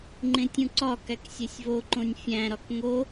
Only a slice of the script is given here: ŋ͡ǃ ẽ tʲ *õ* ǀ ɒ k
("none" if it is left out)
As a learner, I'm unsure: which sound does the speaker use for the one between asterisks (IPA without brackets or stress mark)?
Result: ũ